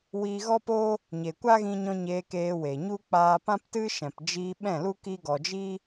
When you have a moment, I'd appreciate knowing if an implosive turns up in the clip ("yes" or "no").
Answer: yes